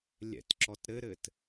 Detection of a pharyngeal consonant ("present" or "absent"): absent